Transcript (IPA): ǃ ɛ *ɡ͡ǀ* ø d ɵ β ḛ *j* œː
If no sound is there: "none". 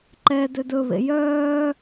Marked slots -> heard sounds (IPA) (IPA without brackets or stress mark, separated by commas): d, j